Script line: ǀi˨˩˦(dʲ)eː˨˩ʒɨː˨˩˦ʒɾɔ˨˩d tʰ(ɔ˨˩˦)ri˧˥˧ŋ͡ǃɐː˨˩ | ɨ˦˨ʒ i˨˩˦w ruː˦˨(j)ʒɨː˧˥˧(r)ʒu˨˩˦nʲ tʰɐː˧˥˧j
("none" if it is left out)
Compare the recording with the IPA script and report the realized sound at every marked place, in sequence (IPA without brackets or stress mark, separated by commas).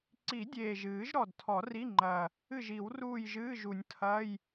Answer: dʲ, ɔ˨˩˦, j, none